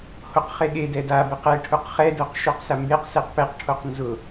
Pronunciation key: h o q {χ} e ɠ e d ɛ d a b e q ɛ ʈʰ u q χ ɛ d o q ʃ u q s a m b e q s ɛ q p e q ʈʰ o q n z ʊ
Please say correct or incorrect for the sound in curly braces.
correct